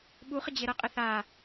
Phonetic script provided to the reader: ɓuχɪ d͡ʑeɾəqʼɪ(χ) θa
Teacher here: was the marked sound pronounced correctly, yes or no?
no